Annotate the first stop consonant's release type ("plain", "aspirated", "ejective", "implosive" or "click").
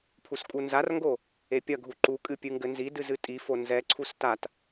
aspirated